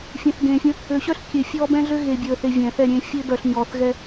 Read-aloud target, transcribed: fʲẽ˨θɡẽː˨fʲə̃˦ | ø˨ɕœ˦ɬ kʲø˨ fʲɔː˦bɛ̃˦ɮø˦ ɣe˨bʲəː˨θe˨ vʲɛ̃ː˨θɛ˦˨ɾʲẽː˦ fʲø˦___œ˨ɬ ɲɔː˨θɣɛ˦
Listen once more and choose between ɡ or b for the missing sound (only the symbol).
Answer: b